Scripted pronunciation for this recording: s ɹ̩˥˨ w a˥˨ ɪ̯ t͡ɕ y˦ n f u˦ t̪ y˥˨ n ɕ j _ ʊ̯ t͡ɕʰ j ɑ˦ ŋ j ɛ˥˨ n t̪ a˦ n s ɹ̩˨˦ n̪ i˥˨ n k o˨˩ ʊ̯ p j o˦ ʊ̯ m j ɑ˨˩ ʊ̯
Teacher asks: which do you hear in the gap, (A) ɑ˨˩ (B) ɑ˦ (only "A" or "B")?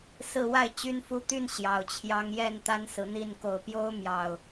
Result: A